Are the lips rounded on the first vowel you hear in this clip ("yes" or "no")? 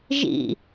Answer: no